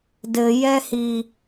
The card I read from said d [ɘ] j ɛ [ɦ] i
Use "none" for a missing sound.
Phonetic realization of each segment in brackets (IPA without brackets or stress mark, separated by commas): ɘ, h